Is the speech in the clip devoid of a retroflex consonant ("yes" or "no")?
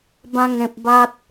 yes